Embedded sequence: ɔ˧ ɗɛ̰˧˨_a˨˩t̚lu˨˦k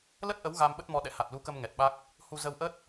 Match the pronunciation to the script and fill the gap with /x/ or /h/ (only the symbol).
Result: h